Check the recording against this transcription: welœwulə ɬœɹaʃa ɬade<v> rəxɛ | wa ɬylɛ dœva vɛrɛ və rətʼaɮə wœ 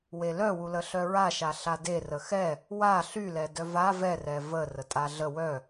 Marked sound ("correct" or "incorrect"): incorrect